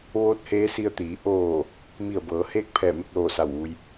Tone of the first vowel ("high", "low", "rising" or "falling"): rising